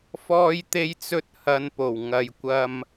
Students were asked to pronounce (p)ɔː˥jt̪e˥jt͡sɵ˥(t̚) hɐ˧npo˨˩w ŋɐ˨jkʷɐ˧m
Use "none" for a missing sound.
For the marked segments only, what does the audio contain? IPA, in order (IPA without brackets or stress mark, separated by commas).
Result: f, t̚